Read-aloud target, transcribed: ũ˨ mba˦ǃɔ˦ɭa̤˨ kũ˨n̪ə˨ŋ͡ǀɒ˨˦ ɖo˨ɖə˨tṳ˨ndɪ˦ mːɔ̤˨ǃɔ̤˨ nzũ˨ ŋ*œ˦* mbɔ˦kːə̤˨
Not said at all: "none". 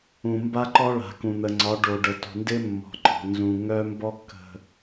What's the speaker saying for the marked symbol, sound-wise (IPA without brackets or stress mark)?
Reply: œ˦